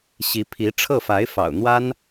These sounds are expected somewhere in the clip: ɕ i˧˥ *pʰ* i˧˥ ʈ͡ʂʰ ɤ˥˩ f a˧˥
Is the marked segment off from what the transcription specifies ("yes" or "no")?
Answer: no